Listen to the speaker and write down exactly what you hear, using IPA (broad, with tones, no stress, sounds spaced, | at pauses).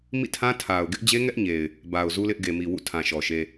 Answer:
m ḭ˦˨ tʰ ã˦ tʰ a˨ ʊ̯ ɡ ɪ˦ ʔ d͡ʑ e˦ ŋ ɛ˦ ʔ ɲ e˨ ɪ̯ | b a˨ ʊ̯ z u˦ l ɪ˦ ʔ ɡ e˨ m i˨ w ṵ˦˨ tʰ ã˨ ʃ ɔ˨ ʃ e˦